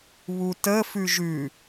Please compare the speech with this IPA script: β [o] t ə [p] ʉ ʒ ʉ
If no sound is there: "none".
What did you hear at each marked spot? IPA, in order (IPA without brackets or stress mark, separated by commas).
u, f